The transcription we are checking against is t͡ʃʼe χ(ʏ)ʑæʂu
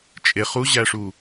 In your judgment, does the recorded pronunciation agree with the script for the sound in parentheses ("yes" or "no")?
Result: no